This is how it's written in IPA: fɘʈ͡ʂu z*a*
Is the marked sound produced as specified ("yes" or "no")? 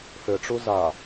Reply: yes